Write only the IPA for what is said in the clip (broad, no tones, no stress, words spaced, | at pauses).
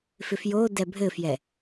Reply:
fɪfjo dɛbʱɘfjɛ